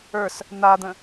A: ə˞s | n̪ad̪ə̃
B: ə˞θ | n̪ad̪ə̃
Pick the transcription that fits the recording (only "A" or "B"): A